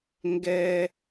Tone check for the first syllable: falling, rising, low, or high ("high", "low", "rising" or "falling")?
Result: high